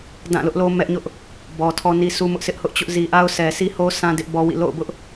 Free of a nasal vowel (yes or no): no